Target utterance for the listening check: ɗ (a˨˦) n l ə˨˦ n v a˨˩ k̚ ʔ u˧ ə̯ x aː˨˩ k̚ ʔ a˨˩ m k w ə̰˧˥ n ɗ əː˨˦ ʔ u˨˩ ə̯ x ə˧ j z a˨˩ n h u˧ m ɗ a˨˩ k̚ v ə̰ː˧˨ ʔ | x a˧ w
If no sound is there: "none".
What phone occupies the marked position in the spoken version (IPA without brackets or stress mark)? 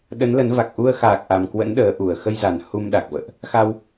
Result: ə˨˦